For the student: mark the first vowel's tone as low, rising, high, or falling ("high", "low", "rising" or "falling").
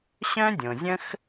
high